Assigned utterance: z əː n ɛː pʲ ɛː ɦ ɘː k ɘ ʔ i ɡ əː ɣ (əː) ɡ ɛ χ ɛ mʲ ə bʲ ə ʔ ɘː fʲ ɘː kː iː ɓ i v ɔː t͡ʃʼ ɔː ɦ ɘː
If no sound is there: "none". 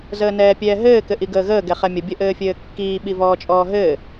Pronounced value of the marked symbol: əː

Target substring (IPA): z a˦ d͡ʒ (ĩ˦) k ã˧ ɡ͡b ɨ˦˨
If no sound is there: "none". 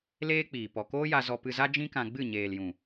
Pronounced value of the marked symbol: ĩ˦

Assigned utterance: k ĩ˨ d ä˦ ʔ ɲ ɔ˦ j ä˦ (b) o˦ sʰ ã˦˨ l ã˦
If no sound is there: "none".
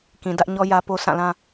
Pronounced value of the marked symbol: p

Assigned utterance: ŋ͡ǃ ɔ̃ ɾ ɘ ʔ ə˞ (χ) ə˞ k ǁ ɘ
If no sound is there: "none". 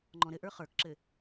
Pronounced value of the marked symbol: χ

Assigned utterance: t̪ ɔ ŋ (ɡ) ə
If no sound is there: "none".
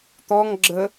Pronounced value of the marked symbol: ɡ͡ǁ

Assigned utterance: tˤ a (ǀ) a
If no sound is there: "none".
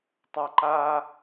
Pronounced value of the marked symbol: ǃ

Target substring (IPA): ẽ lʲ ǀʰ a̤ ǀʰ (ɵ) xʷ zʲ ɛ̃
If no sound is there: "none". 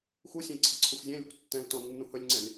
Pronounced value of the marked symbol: ɵ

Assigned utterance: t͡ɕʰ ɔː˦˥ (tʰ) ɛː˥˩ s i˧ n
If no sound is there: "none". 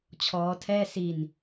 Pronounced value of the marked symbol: tʰ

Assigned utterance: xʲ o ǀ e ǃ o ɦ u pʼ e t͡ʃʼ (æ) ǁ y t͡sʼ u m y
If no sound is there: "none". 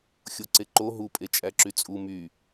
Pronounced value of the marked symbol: æ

